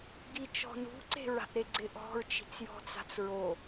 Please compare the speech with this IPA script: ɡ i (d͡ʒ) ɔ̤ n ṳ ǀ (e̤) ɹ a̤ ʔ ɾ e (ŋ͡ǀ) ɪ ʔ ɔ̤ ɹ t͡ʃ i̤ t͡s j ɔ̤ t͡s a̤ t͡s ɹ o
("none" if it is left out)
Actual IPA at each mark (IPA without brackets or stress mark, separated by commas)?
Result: t͡ʃ, e̤, ɡ͡ǀ